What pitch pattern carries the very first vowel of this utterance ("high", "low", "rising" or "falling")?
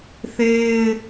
high